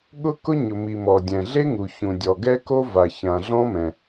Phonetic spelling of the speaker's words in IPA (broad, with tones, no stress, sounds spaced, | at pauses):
ɠ ʊ˥ k ʊ˥ ɲ ʊ˩ m i˩ m ɔ˩ dʲ ɛ̃˩ ɮ e˥ ŋ u˩ ç ũ˩ dʲ ɔ˩ ɡ ɛ˥ k o˥ v a˩ ç ã˩ ɮ ɔ̃˥ m ɛ̃˩